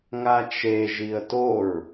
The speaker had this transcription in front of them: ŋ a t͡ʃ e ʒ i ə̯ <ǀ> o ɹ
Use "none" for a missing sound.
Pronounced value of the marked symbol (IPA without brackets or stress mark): t